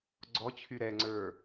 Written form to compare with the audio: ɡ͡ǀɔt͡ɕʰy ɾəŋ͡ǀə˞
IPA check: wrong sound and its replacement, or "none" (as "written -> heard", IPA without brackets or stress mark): ə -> ɛ